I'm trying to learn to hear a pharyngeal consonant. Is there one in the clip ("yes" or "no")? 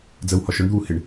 no